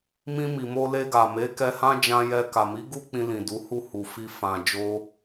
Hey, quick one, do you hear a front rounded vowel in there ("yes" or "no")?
no